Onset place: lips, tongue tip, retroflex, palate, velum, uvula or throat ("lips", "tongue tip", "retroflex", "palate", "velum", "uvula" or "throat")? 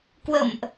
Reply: velum